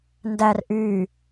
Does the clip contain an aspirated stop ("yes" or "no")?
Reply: no